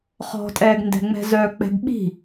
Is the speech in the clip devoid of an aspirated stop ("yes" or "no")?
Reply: yes